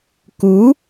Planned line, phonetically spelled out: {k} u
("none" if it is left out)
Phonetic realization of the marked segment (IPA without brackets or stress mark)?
k